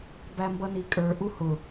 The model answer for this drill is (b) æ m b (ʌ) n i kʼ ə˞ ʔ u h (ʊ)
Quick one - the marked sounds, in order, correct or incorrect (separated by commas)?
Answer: correct, correct, correct